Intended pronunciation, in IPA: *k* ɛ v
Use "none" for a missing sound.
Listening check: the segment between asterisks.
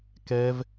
k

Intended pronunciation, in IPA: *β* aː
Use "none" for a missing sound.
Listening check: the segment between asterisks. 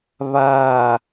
β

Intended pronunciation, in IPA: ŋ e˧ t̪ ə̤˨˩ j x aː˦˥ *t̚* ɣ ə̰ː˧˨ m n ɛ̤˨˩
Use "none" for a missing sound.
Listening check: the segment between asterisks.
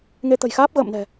p̚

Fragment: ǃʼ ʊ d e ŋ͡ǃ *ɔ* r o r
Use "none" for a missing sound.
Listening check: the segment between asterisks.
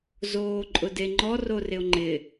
ɔ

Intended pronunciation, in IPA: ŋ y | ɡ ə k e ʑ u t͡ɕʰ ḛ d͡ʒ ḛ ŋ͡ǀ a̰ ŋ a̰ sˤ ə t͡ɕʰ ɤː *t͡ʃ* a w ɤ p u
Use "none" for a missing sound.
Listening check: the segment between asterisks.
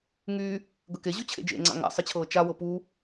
t͡ʃ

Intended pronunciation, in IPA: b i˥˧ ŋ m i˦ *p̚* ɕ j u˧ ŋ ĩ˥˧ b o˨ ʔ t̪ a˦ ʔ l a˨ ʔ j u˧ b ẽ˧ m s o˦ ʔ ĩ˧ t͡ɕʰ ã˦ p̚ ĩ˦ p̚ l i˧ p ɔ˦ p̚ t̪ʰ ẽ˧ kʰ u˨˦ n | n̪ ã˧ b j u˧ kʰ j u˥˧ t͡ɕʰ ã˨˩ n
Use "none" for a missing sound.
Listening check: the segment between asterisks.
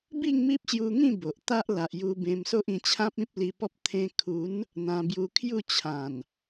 p̚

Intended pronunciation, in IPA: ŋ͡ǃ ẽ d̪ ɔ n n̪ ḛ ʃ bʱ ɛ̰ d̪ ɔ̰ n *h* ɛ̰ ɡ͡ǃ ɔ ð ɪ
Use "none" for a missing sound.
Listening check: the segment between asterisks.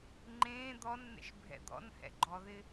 h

